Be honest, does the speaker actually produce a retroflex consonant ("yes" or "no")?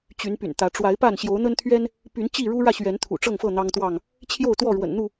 yes